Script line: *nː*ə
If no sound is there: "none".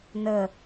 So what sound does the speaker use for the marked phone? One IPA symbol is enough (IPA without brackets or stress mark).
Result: n